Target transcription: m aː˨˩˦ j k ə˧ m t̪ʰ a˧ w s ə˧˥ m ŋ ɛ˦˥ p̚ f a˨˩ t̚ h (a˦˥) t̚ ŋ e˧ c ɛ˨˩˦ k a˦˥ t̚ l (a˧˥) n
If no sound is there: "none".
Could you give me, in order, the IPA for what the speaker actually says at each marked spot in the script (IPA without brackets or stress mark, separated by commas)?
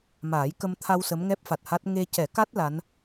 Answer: a˦˥, a˧˥